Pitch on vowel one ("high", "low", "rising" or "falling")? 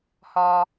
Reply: high